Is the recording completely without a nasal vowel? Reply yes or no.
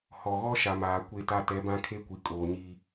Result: no